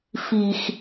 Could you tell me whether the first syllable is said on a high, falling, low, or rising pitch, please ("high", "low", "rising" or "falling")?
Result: low